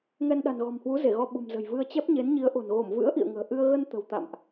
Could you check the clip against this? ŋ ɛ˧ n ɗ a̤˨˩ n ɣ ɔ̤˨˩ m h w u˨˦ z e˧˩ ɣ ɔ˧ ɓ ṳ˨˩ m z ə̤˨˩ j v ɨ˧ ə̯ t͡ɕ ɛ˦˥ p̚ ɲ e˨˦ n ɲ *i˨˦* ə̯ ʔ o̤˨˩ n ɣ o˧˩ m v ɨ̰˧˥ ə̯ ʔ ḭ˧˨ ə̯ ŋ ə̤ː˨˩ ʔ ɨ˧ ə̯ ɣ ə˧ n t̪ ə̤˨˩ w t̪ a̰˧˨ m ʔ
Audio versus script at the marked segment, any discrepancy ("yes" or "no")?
no